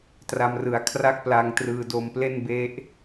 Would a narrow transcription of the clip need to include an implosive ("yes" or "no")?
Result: no